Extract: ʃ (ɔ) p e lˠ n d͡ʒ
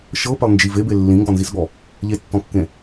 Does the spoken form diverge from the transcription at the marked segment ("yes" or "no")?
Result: yes